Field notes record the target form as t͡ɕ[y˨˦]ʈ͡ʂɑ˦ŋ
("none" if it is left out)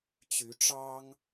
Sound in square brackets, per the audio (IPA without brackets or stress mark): y˨˦